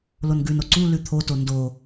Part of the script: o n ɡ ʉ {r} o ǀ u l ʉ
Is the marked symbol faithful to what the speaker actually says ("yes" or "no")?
no